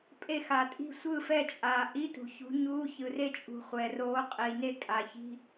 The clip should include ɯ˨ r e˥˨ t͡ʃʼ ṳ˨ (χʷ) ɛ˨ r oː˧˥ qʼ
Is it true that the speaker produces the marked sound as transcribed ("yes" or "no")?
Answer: yes